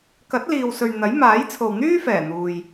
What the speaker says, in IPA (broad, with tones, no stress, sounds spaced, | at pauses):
k ɐ˨˥ t̚ l iː˨ w s ɵ˨ ɥ n̪ ɐ˨˥ j m aː˨˥ j t͡sʰ o˨ w n̪ yː˥ f ɛː˨˩ n̪ uː˨ j